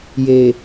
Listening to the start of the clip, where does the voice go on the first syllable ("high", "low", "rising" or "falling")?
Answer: low